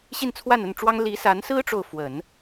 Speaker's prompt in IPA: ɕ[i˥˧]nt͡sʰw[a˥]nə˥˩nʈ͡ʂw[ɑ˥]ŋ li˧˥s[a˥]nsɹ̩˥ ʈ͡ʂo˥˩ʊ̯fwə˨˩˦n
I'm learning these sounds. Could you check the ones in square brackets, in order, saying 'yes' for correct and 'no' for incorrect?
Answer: yes, no, yes, no

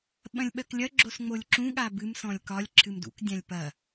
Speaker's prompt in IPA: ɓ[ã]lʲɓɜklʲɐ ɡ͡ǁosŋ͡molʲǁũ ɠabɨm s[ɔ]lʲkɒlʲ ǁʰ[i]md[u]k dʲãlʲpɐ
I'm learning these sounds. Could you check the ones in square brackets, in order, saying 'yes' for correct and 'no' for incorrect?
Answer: no, no, no, no

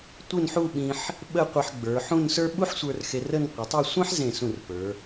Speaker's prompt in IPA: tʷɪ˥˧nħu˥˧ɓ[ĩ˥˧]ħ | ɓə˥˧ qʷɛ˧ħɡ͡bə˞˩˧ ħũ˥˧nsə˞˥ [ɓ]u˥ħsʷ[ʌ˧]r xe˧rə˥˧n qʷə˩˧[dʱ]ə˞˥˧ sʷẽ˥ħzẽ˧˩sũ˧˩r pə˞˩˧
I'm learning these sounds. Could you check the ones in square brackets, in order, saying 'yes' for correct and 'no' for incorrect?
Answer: no, yes, no, no

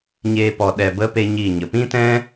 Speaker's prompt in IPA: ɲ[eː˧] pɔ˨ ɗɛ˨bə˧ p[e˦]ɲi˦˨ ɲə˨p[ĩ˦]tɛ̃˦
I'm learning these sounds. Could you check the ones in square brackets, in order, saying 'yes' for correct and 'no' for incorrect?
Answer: yes, yes, yes

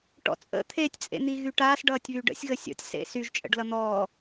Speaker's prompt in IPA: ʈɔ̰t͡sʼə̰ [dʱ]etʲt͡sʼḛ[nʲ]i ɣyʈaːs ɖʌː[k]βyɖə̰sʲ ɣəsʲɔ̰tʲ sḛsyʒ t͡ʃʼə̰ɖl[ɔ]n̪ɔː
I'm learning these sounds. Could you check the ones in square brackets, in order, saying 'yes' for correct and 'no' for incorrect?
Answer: no, no, no, no

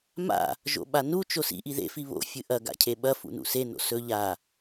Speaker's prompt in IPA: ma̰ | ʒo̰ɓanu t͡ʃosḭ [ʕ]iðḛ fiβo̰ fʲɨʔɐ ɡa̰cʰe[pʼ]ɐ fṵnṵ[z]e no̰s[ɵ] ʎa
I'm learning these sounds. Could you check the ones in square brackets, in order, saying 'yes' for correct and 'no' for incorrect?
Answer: no, no, no, yes

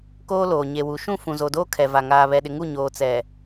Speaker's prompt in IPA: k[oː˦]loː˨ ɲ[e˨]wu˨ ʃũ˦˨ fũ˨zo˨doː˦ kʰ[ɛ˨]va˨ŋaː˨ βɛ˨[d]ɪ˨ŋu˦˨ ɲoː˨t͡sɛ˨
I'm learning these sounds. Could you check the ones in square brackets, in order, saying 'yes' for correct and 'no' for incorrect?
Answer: yes, yes, yes, no

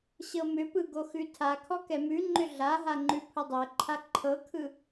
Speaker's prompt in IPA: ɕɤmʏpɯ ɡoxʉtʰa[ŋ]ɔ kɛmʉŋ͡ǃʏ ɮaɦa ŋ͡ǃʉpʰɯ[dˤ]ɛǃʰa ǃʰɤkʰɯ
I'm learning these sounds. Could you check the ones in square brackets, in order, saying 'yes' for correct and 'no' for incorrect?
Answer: no, yes

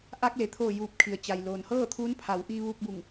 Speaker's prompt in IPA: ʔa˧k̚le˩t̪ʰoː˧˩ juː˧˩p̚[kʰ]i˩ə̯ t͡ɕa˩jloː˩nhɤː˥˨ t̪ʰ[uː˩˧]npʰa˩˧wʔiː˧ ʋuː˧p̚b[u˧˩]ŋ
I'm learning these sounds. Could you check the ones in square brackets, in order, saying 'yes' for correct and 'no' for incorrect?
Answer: yes, no, yes

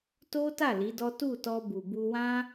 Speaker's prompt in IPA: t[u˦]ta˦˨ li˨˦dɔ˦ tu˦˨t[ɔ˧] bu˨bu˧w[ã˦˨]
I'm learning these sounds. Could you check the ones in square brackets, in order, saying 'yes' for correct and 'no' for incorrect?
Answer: no, yes, no

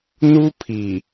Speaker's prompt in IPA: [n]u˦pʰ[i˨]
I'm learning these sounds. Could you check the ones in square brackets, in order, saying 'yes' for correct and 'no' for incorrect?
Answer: yes, yes

